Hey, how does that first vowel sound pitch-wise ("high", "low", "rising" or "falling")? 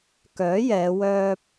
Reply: rising